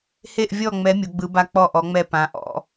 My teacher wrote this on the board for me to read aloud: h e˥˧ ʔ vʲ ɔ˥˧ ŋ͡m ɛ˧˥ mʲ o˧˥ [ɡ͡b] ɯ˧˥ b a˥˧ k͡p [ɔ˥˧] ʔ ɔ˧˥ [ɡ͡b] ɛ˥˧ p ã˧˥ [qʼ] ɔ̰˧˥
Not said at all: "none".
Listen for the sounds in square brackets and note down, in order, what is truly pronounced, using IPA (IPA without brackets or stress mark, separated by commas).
ɡ͡b, ɔ˥˧, ŋ͡m, ʔ